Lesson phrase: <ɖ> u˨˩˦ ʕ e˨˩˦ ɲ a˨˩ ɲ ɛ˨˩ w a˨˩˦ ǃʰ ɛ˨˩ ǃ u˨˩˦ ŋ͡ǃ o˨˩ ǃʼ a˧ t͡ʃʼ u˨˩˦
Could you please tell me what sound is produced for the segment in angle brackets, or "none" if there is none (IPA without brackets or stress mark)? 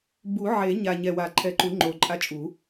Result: b